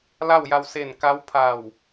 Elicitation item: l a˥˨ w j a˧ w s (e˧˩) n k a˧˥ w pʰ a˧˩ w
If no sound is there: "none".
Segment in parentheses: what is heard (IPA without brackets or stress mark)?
e˧˩